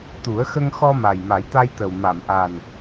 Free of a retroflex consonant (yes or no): yes